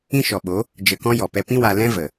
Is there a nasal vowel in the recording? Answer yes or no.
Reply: yes